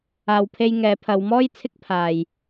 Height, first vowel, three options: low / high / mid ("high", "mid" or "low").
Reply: low